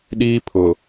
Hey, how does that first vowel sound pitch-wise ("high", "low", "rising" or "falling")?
high